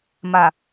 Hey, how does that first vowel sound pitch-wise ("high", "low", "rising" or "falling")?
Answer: low